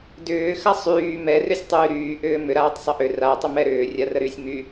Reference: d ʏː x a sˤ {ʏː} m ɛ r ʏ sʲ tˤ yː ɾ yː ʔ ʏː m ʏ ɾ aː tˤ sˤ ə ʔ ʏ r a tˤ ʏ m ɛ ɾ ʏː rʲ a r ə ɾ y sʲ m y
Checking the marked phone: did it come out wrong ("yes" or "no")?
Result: yes